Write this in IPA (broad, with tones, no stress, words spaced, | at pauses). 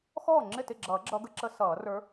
xɔː˥˩ŋ͡ǁɪ˥˩tɪ˥˩ɡ͡ǁʌː˨˩˦ ɡ͡ǁʌ˧˥ɡə˧˥ ǁə˧˥sʌː˨˩˦rə˞˧˥